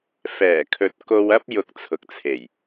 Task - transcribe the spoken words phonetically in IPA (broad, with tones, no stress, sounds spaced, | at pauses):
f ɛː˨˩ kʰ ɵ˨ t̚ k o˧ w ɐ˥ p̚ j ʊ˧ k̚ t͡sʰ ʊ˨ k̚ t͡sʰ e˨˩ j